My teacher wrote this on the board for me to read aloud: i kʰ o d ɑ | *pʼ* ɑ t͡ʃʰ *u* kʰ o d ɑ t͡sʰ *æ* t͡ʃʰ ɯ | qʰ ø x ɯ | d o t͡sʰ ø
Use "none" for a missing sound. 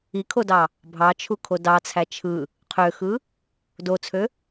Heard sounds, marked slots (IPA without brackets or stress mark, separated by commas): bʱ, u, æ